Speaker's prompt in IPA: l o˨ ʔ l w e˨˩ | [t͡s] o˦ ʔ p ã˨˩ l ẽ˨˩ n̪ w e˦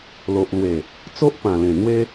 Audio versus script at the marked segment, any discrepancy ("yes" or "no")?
no